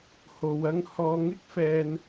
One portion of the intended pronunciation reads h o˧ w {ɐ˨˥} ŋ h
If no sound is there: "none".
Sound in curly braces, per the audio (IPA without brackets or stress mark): ɐ˥